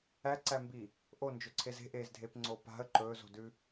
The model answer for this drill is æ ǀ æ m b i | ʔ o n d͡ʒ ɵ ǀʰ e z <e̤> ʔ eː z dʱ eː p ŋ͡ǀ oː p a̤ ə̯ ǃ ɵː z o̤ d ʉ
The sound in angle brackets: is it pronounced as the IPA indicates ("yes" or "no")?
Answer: yes